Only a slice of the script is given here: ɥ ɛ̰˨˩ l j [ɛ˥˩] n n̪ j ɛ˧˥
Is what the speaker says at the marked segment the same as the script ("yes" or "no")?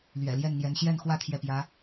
yes